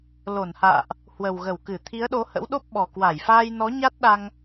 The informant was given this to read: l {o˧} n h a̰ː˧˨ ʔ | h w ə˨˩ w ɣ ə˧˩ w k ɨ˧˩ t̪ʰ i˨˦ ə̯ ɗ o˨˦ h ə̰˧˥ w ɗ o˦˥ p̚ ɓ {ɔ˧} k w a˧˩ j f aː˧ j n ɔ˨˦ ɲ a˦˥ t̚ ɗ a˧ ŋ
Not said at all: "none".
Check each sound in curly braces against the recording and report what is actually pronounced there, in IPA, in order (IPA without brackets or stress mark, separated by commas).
o˧˩, ɔ˨˩